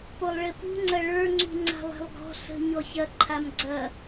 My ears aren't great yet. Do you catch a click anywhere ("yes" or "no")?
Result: yes